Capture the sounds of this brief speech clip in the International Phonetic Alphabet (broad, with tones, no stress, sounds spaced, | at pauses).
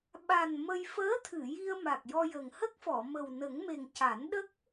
ɓ a˨˩ n m ə˧ j f əː˧˥ t̪ʰ ɨ˨˩˨ j i˧ ə̯ m a˨˩ k̚ j ɔ˧ j ə˨˩ ŋ h ə˦˥ k̚ f ɔ˨˩˨ m ə˨˩ w n ə˨˩˦ ŋ m e˨˩ ŋ c a˨˩˦ n ɗ ə˦˥ k̚